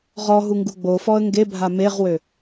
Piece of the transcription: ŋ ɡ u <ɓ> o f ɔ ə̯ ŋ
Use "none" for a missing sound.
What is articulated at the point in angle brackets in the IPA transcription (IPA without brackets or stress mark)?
ɡ͡b